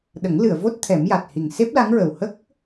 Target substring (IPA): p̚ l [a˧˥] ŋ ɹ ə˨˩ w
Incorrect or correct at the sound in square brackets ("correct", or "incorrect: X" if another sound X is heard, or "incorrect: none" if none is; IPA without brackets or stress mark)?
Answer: correct